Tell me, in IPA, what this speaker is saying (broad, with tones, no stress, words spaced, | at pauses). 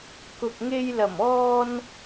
kʊ˨k̚ŋe˧jlɐ˨˩m ɔː˧n